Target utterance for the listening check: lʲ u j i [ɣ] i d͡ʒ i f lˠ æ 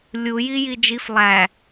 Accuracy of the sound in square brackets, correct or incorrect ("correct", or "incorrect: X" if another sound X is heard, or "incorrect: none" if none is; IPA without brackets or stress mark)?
incorrect: j